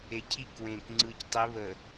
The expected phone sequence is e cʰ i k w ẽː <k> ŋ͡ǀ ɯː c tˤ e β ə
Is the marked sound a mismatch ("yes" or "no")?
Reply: no